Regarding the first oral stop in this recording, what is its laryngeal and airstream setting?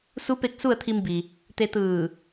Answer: plain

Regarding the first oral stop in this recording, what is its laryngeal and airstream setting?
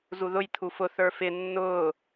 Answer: aspirated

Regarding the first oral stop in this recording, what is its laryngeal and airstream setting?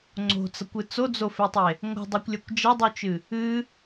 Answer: click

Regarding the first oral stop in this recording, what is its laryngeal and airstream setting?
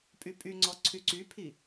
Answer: ejective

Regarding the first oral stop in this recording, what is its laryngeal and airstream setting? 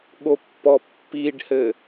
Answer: implosive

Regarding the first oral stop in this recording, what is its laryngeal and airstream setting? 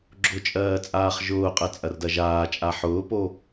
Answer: click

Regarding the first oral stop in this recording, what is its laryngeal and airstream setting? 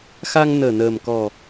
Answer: plain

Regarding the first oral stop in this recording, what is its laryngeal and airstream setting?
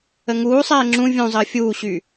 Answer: click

